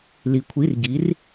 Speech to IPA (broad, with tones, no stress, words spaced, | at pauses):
li˩˧kʷʰi˩˧˩rɟi˩˧r